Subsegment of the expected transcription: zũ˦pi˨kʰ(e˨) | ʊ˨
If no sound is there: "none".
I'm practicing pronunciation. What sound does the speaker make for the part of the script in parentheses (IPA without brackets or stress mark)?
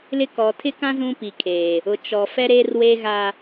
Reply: eː˨